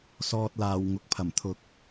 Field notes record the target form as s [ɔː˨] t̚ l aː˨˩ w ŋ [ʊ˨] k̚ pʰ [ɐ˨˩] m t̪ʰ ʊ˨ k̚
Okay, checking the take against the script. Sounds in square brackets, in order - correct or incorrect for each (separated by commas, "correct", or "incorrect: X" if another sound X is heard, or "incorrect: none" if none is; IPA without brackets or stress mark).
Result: correct, correct, correct